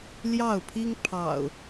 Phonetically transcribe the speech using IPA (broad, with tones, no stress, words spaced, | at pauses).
ljɑ˥˨ʊ̯pʰi˦ŋpʰɑ̰˨˩ʊ̯